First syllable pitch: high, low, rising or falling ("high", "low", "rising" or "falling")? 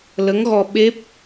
rising